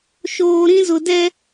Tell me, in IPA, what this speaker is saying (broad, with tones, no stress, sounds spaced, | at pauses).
ʃ oː˨ ɾ ĩ˦ z ʊ˨ d ɛ˦